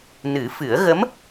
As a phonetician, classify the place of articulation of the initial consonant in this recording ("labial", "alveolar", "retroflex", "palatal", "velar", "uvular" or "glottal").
alveolar